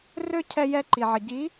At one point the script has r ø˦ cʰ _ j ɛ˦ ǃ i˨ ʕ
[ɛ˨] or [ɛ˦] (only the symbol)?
ɛ˦